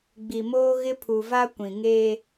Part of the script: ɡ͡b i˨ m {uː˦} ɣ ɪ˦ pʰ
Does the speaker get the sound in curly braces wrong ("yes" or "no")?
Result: yes